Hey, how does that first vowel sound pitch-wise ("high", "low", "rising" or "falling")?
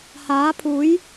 rising